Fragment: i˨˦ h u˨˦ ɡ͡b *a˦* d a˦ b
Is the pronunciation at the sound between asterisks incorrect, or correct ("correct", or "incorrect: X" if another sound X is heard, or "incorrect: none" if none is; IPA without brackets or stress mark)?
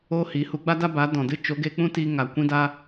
correct